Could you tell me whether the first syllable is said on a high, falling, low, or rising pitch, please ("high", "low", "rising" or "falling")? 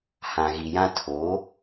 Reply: low